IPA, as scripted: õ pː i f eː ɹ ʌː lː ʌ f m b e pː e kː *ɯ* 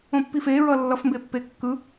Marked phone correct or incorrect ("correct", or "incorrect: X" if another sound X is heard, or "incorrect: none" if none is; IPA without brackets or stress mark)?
correct